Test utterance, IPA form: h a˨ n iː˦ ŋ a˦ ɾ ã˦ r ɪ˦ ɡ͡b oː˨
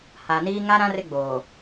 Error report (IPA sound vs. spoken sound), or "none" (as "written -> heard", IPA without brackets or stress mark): none